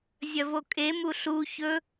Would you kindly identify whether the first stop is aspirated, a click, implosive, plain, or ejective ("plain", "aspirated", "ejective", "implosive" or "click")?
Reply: ejective